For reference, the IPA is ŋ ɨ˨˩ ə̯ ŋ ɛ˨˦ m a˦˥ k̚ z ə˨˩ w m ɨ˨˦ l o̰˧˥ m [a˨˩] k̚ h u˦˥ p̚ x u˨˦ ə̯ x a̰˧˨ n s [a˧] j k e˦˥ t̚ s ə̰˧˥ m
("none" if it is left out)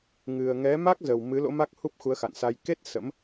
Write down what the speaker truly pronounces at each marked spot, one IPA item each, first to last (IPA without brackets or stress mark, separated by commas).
a˦˥, a˧